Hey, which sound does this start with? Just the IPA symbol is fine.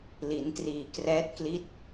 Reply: l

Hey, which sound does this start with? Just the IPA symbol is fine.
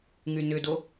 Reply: ŋ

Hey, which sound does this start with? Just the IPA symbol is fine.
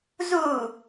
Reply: z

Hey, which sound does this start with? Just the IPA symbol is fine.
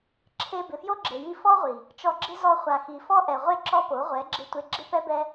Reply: ǁʰ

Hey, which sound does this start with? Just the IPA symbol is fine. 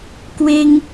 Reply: k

